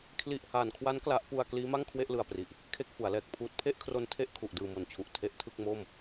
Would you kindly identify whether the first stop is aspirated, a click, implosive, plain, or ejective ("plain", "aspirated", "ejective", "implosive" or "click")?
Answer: aspirated